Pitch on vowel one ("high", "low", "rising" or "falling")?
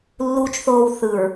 low